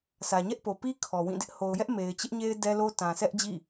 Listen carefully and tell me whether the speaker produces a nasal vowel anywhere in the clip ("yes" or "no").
yes